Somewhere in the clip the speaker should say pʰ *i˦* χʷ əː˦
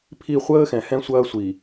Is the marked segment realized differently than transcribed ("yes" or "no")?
yes